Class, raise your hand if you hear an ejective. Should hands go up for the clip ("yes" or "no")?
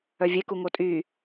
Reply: yes